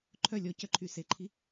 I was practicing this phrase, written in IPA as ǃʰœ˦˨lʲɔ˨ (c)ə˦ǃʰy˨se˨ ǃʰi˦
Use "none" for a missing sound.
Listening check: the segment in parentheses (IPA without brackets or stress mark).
c